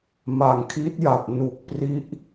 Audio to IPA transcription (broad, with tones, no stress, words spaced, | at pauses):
ma˨˩ŋkʰi˦˥t̚ja˨˩p̚ nu˨˩k̚pri˦˥ʔ